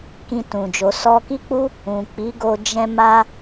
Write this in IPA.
k ĩ˧ t ũ˨ d͡ʒ o˨ s ɔ˧ k i˦ k͡p u˦ | ũ˨ k͡p i˨˦ ɡ o˧ d͡ʒ ɛ̃˧ m a˧

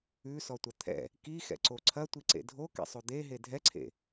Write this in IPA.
ʉ s ɔ tʷ ɐ t̪ʰ ɛ̰ | k i x ɛ̰ ǀ o ǀʰ ɐ tʷ i ǀ ḛ dʱ o k ɛ̰ sˤ o d̪ e ɦ e dʱ ɛ ǀʰ ḛ

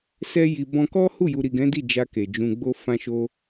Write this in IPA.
s ɛ˧ j i˨ b ɔ̃˧ k ɔ˦ h u˦˨ j u˨ ɾ i˨ ɡ ɛ̃˨˦ d i˦˨ d͡ʒ a˧ k e˨ d͡ʒ ũ˧ ɡ͡b o˦ f ã˦ ʃ o˦

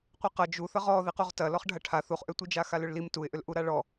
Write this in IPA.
qʷ i q ɐ d͡ʒ u θ ə ʁ ɔ ð i q u ʁ t ɐ l ɔ χ ɖʱ ɐ ʈʰ a θ u χ ʔ ʏ tʷ i d͡ʒ a x a l ʏ ɭ l i m t u ɪ̯ ʔ ʏ l ʔ u ɾ a ɭ ɔ

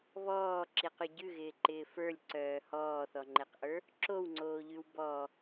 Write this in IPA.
β ɔː ǁ i q ʉ ɟ ʉ ɣ ɪː ǃ ɪː f ə˞ lʲ ǀ œː h ɔː θ ɔ ŋ͡ǃ e q ʔ ə˞ | ǁ o w ŋ͡ǀ oː ʎ ʉ w b ɔ

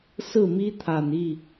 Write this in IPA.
s ɹ̩˥˩ m i˥ t̪ʰ a˨˩ n i˥˩

